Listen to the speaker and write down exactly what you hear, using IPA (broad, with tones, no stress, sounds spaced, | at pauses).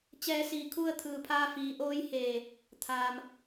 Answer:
t͡ɕ ɛː˧ s iː˧˩ kʰ u˥˨ ə̯ t̪ʰ ɯː˧˩ pʰ aː˧ f iː˩˧ ʔ oː˧˥ j h eː˧˩ | t̪ʰ aː˩ m